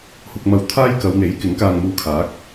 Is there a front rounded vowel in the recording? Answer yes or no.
no